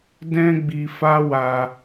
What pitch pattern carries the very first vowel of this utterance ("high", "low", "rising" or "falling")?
high